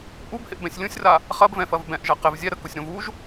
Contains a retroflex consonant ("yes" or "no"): no